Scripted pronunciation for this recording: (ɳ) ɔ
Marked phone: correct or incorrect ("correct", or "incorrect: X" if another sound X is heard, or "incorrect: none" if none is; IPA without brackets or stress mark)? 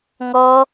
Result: incorrect: ŋ